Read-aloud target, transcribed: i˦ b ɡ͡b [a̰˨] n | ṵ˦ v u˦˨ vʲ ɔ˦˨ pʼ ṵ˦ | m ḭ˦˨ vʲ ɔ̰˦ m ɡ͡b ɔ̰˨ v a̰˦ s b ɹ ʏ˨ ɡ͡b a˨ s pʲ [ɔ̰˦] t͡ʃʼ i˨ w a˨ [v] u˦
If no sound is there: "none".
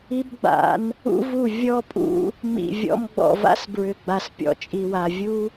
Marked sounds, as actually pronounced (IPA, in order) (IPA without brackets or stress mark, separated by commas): a̰˨˦, ɔ̰˨, vʲ